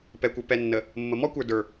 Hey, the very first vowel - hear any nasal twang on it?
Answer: no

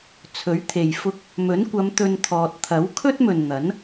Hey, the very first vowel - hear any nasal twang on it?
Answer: no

